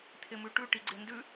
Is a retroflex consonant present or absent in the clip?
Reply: present